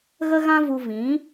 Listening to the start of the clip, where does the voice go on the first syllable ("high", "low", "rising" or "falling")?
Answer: high